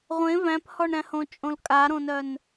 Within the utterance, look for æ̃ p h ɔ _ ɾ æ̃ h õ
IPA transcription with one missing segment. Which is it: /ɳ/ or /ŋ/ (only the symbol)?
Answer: ɳ